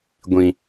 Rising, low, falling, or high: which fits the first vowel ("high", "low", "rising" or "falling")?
low